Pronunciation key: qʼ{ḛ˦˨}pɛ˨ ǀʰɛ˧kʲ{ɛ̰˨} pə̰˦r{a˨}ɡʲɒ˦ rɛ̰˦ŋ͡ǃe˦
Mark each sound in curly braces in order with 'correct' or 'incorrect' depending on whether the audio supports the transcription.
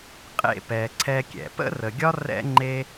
correct, correct, incorrect: ə˨

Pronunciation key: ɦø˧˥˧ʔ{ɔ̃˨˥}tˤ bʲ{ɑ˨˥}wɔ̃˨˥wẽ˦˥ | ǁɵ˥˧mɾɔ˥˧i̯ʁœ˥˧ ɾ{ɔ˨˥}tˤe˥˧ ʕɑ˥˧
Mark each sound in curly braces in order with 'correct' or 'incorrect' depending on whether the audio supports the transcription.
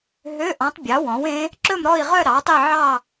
correct, correct, incorrect: ɑ˨˥

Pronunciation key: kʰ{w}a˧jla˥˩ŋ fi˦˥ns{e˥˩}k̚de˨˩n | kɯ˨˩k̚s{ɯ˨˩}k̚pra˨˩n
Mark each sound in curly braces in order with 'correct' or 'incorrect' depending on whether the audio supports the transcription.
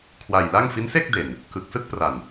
correct, correct, incorrect: ɯ˥˩

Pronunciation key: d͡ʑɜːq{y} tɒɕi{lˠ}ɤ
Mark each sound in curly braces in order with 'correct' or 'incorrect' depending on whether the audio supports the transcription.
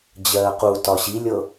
incorrect: u, incorrect: lʲ

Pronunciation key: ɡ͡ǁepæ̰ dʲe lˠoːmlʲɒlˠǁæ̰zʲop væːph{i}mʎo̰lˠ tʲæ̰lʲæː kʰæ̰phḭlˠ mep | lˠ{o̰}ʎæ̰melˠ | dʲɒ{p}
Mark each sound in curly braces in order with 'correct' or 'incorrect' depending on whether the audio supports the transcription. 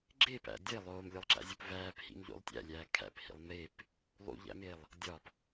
incorrect: ḭ, incorrect: ṵ, correct

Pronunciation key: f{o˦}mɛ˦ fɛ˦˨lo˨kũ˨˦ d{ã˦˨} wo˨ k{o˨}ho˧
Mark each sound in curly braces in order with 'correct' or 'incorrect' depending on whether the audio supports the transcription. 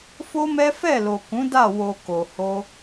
correct, incorrect: a˦˨, correct

